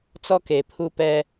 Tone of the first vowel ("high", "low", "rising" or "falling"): high